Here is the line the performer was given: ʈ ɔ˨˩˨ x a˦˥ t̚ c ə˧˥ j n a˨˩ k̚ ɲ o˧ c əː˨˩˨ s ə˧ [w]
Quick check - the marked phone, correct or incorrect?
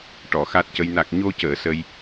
incorrect